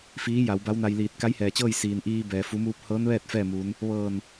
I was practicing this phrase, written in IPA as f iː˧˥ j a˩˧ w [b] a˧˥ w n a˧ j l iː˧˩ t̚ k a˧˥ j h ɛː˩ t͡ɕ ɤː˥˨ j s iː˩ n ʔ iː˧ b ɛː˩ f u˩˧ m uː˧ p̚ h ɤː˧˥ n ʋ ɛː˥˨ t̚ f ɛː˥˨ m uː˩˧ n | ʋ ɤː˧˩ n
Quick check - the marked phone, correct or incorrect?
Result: correct